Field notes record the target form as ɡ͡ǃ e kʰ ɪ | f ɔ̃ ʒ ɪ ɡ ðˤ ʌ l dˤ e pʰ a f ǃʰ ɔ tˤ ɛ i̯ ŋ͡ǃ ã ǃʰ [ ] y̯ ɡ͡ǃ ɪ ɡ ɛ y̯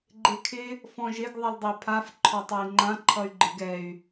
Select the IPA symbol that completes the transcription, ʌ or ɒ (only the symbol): ʌ